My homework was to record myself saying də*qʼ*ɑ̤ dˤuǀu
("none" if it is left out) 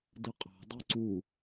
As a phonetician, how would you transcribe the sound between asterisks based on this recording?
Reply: qʼ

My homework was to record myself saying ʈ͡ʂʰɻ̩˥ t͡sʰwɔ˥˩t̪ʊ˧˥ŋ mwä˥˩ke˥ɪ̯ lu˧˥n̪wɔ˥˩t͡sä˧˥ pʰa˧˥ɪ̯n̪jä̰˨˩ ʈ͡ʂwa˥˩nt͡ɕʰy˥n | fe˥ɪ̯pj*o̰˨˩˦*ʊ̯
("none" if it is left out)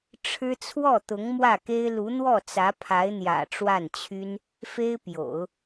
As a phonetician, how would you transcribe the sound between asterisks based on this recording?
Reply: o̰˨˩˦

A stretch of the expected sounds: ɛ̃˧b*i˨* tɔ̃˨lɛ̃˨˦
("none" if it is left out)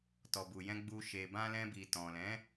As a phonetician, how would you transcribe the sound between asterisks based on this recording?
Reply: i˨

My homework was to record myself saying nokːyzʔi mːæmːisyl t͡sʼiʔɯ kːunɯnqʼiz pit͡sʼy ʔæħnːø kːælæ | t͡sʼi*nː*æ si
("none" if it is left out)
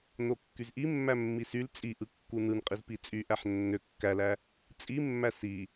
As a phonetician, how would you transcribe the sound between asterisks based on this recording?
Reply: mː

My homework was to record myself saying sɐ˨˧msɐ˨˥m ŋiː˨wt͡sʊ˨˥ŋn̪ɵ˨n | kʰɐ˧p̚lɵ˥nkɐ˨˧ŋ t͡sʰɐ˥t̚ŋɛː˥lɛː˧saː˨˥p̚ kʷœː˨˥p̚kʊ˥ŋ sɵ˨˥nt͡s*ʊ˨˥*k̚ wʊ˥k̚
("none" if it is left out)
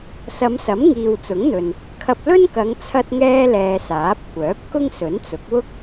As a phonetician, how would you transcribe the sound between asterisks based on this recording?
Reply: ʊ˨˥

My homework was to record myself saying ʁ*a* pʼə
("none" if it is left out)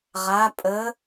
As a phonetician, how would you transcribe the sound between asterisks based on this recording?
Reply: a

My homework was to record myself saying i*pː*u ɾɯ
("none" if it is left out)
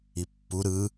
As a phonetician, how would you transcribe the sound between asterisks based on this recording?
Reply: pː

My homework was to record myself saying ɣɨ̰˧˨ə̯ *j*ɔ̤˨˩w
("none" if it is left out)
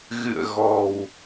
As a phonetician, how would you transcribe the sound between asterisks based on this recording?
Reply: ɣ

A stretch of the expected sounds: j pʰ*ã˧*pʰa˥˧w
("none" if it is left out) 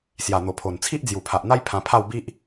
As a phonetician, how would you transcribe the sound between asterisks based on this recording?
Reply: ã˧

